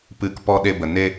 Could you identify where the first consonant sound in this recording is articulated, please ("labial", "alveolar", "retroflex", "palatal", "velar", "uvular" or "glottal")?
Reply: labial